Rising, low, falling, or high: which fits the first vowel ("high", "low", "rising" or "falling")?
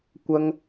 high